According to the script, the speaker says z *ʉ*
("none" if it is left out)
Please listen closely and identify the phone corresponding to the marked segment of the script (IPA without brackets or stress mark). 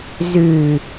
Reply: ʉ